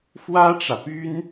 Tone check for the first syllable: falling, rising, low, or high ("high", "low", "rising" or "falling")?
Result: high